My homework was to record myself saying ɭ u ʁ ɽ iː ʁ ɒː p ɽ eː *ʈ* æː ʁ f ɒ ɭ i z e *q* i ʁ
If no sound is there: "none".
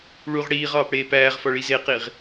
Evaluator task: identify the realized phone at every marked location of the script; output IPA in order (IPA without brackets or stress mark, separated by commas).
p, q